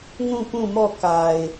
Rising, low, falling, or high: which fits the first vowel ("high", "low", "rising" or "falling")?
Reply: falling